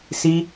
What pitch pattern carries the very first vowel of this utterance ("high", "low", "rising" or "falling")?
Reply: high